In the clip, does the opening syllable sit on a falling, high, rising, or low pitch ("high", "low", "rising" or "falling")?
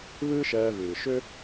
high